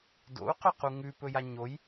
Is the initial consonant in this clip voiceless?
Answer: no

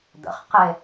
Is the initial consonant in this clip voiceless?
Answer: no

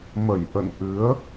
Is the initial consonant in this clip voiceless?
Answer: no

